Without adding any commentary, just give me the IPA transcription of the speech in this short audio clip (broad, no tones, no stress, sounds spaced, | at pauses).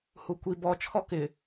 h u kʷ i b ɔ t͡ʃʰ ɔ k ɪ